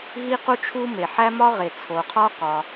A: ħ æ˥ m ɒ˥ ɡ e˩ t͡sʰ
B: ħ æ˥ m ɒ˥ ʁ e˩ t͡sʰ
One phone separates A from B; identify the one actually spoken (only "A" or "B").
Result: B